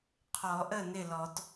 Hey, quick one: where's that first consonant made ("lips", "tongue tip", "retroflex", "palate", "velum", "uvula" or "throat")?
uvula